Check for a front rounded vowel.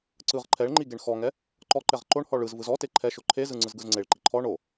absent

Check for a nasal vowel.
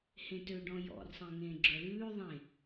present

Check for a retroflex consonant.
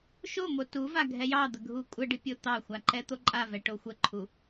present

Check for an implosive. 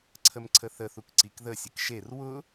absent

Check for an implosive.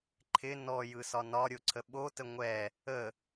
present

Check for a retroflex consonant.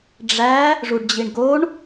present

